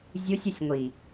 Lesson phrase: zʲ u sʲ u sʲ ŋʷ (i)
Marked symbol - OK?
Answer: yes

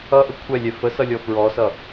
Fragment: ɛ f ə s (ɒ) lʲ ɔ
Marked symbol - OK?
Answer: no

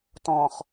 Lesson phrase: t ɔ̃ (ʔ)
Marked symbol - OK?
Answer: no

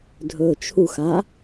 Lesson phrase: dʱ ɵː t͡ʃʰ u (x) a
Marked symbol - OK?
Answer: yes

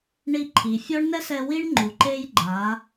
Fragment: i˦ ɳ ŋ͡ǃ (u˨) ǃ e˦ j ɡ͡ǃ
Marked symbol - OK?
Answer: yes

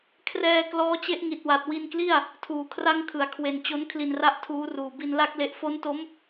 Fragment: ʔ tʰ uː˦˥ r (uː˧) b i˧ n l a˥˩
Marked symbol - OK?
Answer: no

